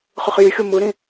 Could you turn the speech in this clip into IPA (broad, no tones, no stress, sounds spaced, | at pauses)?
χ ɯ χ j y xʲ o m ɯ ɾ ĩ